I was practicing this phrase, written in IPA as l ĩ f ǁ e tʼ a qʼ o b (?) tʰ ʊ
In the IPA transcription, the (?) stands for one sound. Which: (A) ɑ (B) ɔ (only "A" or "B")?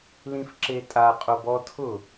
B